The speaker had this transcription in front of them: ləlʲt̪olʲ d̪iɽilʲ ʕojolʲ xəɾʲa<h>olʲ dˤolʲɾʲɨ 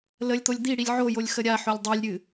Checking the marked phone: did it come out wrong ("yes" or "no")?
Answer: yes